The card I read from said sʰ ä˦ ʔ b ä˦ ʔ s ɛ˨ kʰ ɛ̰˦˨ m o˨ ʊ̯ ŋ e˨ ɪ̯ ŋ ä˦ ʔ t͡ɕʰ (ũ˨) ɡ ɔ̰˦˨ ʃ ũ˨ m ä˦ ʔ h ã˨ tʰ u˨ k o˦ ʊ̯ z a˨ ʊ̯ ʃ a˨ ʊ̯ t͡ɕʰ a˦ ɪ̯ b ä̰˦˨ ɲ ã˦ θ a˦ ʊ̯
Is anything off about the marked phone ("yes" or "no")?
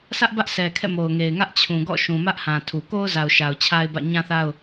no